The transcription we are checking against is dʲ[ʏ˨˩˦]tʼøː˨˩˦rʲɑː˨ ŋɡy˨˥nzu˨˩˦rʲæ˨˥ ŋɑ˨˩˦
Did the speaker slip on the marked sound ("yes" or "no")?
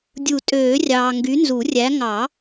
yes